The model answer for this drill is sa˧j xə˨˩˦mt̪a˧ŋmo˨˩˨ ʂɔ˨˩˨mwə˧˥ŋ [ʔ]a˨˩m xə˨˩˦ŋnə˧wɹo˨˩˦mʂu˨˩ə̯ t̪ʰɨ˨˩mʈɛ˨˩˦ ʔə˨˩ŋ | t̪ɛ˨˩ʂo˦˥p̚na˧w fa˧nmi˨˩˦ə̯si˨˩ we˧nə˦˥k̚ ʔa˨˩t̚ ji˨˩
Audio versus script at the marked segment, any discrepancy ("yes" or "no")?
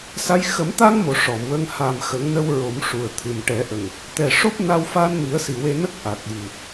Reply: yes